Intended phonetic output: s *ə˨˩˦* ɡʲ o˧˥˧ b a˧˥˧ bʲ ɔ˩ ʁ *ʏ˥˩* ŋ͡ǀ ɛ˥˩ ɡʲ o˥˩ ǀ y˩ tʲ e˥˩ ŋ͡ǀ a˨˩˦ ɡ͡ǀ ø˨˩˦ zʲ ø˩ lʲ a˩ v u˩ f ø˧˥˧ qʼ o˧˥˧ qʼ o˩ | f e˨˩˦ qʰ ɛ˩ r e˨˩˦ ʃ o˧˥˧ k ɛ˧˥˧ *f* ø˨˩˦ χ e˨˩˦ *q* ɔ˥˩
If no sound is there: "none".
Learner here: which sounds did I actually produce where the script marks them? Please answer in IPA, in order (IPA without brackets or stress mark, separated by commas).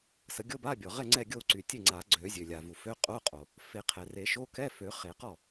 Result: ə˨˩˦, ɛ˥˩, f, q